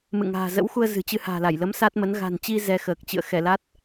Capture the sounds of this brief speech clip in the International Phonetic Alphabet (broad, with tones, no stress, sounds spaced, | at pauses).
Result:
m ɨ̰˧˨ ŋ a̤ː˨˩ z ə̰˧˥ w x u˧ ə̯ z ɨ̤˨˩ t͡ɕ ɨ˧ h a̤ː˨˩ l a˧˩ j l ə˨˦ m s a˦˥ t̚ m ə˨˦ n ɣ a̤˨˩ n t͡ɕ i˧ z ɛ˧ x əː˨˩ k̚ t͡ɕ ɨ̰˧˨ ə̯ x ɛ˧˩ l a˦˥ t̚